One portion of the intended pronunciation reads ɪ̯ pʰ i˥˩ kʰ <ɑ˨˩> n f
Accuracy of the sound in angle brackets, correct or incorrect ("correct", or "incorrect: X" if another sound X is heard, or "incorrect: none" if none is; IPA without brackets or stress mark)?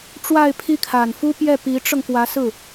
incorrect: a˨˩